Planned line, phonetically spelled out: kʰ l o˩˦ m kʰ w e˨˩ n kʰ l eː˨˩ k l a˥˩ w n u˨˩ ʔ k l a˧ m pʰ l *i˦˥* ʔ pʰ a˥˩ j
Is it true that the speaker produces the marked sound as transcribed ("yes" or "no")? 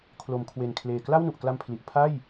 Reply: no